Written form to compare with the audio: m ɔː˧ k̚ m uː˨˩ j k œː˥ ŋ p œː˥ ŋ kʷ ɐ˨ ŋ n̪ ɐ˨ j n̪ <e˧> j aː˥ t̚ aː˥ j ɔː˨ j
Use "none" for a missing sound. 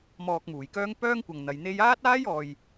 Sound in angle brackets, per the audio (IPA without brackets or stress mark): e˧